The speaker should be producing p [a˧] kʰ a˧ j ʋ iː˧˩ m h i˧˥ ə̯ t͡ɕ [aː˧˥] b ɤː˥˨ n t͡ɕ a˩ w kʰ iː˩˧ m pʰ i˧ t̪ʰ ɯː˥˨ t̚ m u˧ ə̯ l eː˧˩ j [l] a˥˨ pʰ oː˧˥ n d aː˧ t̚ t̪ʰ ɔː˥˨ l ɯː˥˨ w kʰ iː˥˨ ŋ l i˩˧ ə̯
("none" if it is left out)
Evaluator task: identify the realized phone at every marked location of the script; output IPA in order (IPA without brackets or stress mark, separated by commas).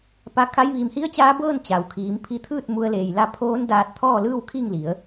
a˧, aː˧˥, l